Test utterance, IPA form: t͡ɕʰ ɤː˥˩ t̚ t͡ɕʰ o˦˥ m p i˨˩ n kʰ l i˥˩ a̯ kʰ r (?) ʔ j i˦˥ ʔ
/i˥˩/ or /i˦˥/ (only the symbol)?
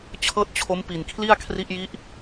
i˦˥